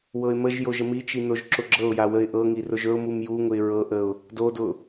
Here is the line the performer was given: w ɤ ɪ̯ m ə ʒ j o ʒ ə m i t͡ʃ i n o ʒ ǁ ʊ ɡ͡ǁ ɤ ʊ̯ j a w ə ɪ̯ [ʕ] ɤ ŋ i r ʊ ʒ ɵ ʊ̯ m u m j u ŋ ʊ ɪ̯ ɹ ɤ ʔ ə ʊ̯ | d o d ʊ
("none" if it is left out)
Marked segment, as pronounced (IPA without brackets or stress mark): ʔ